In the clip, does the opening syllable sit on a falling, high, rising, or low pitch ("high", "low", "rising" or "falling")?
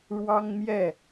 high